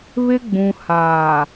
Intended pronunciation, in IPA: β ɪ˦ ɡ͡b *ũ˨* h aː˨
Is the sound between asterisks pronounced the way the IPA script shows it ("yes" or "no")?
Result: yes